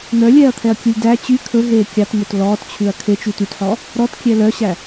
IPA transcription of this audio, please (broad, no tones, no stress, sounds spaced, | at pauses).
n̪ œ lʲ ɛː ɐ̯ t̪ʰ ɛ ɐ̯ kʲ u lʲ d æ t͡ɕ y kʰ ɵ ɦ eː kʲ ɑ t m ɵ t l ɔː t t͡ɕʰ ʉ ɐ̯ kʰ e t͡ʃ y t y t ħ ɔ | ɾ ɔ t kʲ ɛ l œ ɕ æ